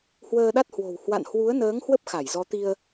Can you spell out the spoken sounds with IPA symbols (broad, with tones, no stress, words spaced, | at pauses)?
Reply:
hwəː˧ɗa˦˥t̚hwo̤˨˩w hwa̰˧˨nhwu˨˦ə̯nəː˨˦ŋ hwə˦˥p̚xa˧˩j zɔ˨˦t̪i˧ə̯